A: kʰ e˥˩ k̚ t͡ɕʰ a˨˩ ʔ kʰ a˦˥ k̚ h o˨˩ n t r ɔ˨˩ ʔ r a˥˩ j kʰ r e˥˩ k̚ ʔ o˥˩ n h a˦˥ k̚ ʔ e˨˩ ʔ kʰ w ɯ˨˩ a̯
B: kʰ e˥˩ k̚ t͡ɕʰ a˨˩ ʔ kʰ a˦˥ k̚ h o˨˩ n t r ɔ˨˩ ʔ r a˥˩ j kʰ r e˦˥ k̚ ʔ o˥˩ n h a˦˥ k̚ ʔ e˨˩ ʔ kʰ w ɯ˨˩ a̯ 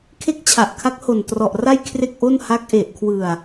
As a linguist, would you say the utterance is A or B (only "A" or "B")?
A